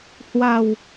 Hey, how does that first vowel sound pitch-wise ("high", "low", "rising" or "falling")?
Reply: low